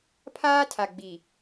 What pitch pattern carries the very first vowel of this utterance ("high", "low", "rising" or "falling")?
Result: high